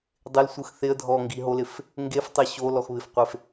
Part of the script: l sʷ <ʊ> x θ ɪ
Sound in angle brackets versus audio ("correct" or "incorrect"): incorrect